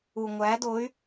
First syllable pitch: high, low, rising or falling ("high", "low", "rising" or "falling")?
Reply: low